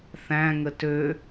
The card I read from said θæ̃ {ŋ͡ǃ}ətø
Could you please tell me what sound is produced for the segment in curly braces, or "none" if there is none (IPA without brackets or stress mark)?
ŋ